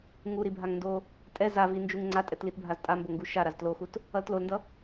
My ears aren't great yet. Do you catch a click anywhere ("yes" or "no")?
yes